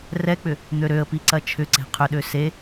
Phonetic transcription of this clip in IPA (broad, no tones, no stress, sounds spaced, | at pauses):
r ɛ k͡p ʏ | n̪ ø ɾ ø ə̯ p i ǀ ɐ t͡ʃʰ ʏ ǀ e̤ qʰ ʏ ɗ ø s e